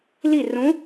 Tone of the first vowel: falling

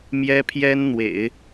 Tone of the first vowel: high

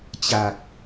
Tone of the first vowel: low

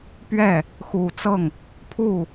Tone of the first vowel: falling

